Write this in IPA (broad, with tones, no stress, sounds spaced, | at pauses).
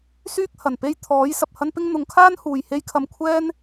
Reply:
s yː˥ k̚ h ɐ˨˩ n p e˥ j t̪ʰ ɔː˨˥ j s ɐ˨ p̚ h ɐ˥ n p ɪ˥ ŋ n̪ ʊ˨˧ ŋ kʰ aː˥ n h uː˨ j h e˥ j kʰ ɐ˧ m kʷʰ ɛː˥ n